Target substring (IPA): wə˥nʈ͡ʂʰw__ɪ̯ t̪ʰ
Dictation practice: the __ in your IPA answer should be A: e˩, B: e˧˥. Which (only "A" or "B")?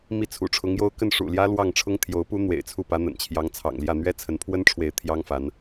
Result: B